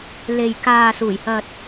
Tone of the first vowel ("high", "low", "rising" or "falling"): low